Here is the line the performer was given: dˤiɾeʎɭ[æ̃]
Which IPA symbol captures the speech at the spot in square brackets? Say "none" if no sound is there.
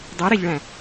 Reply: æ̃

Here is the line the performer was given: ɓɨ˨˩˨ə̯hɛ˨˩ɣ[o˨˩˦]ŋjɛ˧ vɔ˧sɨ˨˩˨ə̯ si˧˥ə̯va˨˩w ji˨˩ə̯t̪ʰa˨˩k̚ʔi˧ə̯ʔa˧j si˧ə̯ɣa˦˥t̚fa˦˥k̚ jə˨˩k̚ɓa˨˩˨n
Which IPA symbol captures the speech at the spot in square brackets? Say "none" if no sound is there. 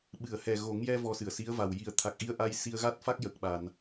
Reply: o˨˩˦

